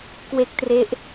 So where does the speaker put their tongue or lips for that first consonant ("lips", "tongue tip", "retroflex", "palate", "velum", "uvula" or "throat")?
velum